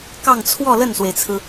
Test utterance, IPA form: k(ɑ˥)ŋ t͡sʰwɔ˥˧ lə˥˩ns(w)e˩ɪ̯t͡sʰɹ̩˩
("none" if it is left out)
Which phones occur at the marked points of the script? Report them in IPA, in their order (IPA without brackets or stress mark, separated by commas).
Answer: ɑ˥˧, w